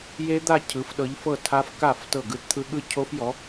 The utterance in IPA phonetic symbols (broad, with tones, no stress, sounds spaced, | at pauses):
j e˦˥ d̪ a˥˧ cʰ ɯ˨˥ f ɗ ɤ˨˥ ʎ f ɤ˥˩ tʰ a˦˥ f k a˥˩ f t ɤ˥˩ ɡ ɯ˦˥ t t̪ʰ ɯ˦˥ ɠ ɯ˥˩ cʰ o˦˥ f j ɔ˨˥